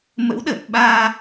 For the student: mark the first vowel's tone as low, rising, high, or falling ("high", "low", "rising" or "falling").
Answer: rising